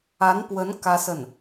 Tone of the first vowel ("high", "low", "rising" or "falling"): rising